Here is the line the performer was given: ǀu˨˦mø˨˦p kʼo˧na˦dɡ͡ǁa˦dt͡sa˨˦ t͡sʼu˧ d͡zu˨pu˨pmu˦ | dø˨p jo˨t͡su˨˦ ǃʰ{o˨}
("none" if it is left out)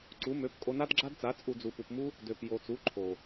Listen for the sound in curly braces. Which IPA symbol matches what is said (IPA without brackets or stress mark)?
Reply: o˨